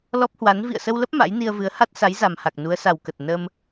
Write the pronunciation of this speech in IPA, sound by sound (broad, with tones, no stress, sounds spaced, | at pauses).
l ɔ˦˥ p̚ h w a˨˦ n v ḭ˧˨ ə̯ s ə˧ w l ə˦˥ p̚ m a̰˧˥ j n i˧ ə̯ v ɨ˨˦ ə̯ h a˦˥ t̚ s a˨˦ j z a˨˩ m h a˨˩ k̚ n u˨˦ ə̯ s a˨˩ w k ə˨˩ t̚ n ə˧ m